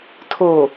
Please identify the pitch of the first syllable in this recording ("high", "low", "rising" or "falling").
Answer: low